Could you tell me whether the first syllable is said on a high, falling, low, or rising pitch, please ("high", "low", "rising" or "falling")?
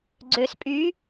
low